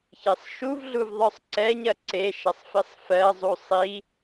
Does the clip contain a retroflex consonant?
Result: no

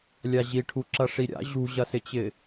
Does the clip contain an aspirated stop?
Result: yes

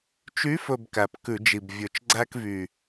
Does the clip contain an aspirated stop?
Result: no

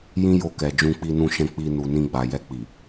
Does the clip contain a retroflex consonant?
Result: no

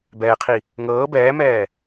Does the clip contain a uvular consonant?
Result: yes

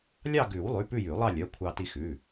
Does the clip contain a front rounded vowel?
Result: yes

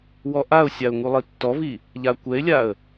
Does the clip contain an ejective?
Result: no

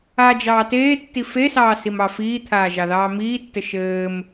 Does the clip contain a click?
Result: no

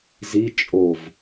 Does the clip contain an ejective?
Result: yes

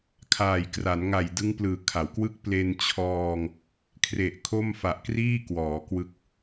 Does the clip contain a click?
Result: no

